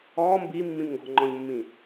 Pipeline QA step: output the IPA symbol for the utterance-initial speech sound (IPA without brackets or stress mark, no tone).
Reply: ɔː